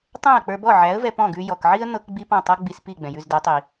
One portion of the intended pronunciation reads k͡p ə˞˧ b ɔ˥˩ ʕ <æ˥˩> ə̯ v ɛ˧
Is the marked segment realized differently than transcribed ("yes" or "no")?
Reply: yes